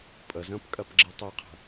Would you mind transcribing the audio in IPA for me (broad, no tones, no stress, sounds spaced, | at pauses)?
pʼ ə z ə̃ː p kʼ ɜ p ɡ͡ǁ i tˤ ɜ qʰ ə̤